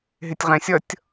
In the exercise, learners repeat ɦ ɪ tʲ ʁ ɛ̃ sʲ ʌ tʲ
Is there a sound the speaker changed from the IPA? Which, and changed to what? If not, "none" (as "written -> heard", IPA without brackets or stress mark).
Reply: none